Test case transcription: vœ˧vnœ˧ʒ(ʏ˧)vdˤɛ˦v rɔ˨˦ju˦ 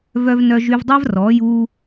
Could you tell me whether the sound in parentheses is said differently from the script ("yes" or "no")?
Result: yes